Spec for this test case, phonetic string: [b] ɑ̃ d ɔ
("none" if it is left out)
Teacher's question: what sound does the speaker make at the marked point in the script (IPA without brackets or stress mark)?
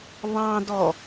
β